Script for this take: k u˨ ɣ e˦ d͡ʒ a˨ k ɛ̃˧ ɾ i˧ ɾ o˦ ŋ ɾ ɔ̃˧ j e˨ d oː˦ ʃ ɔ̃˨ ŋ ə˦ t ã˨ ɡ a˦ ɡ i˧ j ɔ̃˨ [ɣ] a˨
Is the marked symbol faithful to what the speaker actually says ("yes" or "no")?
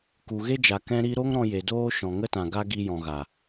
yes